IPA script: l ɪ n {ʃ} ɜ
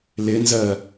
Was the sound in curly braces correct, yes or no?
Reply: no